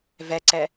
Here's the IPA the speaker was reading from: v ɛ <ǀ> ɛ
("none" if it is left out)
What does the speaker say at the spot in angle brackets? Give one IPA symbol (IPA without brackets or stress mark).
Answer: ǀ